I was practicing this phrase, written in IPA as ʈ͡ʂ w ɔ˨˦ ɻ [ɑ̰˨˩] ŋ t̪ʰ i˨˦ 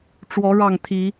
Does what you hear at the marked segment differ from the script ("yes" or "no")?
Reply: yes